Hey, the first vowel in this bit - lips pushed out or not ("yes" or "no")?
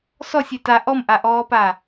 yes